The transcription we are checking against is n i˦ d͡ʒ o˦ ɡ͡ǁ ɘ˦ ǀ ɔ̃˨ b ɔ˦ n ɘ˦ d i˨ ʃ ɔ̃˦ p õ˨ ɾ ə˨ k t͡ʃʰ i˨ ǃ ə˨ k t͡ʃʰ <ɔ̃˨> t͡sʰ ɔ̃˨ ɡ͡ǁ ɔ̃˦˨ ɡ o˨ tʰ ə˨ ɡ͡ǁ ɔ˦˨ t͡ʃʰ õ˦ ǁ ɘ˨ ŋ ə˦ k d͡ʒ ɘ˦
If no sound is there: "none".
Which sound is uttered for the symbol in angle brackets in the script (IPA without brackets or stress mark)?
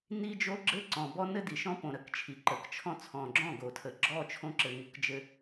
ɔ̃˦